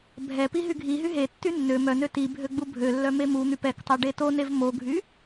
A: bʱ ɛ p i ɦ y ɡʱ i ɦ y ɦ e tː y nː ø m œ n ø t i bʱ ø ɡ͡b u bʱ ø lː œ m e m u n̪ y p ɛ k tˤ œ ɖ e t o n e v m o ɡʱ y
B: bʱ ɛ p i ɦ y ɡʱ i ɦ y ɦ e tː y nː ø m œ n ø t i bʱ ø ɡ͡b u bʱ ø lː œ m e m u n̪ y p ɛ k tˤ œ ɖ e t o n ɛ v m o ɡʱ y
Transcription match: A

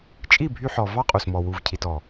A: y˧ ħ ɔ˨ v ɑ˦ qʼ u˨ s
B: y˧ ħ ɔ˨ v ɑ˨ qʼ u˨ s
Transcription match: A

